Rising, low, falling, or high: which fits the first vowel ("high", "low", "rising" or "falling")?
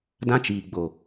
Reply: high